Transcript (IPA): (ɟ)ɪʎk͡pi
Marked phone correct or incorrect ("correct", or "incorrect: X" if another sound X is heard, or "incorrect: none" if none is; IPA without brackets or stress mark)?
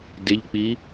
incorrect: d